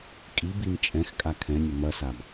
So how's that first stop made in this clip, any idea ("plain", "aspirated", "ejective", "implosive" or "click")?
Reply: ejective